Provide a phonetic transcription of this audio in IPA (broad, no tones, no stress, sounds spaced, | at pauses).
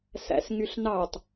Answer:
s æ̰ s ŋ y ɬ n ɑ tˤ